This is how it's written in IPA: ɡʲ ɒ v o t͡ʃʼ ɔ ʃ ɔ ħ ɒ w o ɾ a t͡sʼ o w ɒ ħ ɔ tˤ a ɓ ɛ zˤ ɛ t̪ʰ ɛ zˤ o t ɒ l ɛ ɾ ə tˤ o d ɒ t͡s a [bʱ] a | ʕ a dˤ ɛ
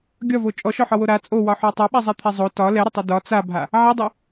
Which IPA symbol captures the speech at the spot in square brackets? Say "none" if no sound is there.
bʱ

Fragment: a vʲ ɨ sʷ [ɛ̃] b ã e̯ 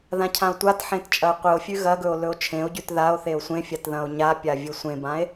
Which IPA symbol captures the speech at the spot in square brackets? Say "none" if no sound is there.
ẽ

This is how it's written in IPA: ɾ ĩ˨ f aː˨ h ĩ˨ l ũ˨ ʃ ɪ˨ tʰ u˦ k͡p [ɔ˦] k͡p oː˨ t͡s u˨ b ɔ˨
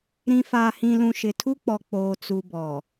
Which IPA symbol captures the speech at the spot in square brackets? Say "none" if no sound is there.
ɔ˨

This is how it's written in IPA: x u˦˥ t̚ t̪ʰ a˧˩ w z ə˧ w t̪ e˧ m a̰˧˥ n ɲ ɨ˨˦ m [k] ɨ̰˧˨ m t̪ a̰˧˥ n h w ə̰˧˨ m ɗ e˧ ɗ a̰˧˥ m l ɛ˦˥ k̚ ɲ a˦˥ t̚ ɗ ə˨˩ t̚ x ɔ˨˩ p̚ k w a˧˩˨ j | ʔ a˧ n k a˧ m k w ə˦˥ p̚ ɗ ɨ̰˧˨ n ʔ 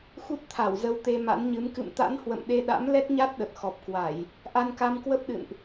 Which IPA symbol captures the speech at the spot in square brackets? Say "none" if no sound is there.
k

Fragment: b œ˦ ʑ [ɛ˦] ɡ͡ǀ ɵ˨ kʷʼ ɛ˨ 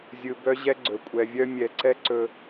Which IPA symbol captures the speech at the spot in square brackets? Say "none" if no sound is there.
ɛ˦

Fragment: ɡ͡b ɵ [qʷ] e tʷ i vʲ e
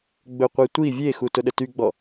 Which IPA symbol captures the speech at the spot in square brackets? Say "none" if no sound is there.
qʷ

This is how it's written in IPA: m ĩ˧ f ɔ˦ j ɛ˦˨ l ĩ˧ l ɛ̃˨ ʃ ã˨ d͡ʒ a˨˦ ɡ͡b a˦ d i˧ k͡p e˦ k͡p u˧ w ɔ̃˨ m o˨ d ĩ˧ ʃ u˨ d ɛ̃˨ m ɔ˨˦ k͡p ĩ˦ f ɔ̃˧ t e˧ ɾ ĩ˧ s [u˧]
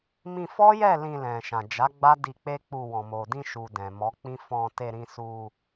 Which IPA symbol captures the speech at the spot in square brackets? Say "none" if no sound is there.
u˧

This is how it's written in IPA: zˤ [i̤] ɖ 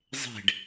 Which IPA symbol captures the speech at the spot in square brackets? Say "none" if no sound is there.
e̤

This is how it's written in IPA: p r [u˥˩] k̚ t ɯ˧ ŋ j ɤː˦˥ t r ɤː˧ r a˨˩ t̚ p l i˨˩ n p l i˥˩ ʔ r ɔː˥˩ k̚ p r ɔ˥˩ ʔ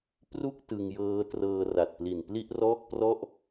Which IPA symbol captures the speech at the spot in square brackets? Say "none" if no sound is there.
u˥˩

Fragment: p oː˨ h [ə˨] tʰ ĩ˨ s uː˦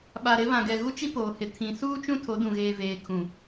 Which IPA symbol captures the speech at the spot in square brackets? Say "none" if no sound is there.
ɪ˨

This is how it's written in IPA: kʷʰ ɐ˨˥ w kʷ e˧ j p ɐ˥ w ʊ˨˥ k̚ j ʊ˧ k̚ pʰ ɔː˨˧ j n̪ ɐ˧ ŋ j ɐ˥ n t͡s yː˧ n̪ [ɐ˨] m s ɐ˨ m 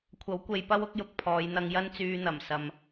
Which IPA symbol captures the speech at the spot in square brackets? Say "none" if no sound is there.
ɐ˨˩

